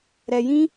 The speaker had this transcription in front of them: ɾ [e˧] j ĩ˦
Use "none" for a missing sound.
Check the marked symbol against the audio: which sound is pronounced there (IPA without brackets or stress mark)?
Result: ɛ˧